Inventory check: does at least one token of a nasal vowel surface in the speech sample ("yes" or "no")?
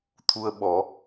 no